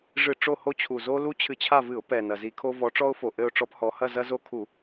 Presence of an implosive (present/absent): absent